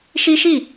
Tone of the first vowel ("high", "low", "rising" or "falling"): high